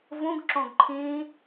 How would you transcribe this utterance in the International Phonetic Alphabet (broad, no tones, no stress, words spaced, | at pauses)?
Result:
vũɡǁõɡ ǃʰĩ